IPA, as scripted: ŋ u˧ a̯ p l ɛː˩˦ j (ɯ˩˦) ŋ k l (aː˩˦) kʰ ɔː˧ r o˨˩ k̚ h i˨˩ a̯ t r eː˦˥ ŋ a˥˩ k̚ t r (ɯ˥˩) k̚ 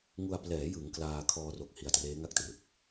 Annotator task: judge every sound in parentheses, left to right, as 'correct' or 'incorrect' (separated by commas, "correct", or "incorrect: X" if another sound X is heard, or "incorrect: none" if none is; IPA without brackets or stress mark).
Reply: correct, incorrect: aː˧, incorrect: ɯ˨˩